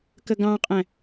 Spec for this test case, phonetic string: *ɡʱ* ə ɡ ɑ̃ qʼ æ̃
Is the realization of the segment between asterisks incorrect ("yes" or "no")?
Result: yes